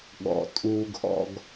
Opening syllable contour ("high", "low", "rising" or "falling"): low